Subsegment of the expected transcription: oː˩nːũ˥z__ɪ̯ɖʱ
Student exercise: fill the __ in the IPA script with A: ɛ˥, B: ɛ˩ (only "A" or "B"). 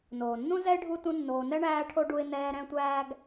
A